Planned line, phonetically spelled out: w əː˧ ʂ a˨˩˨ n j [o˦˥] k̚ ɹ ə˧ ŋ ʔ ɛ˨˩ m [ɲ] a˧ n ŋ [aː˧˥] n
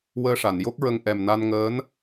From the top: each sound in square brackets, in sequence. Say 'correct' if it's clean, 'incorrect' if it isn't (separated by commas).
correct, incorrect, incorrect